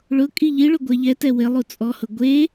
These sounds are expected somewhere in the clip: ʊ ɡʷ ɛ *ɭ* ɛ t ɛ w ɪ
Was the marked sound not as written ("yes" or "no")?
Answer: yes